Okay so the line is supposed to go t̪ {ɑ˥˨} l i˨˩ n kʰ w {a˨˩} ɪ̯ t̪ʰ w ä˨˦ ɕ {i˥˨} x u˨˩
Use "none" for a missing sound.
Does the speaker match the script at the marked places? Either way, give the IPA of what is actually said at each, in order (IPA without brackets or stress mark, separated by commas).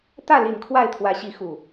ä˥˨, a˥˨, i˨˦